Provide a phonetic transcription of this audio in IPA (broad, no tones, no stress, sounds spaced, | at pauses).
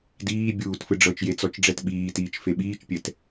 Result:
d iː bʲ uː t f ɯ ɖ͡ʐ ɤ t͡ʃ j e t͡s ɔ t͡ʃ ɖ͡ʐ ɛ t ɓ iː t iː t͡ʃ f e ɓ iː t͡ʃ pʲ ɛ t